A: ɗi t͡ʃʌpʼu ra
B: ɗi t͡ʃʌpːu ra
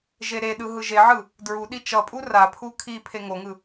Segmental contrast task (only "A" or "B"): A